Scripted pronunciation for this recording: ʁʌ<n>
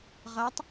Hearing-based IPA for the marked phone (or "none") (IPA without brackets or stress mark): tˤ